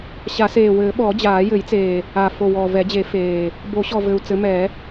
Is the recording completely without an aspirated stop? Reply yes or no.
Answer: yes